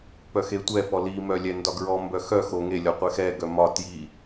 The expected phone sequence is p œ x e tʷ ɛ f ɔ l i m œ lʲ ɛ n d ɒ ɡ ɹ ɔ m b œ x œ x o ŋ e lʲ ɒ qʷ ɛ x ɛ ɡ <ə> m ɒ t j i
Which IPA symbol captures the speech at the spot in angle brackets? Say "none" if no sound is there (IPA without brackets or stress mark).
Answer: œ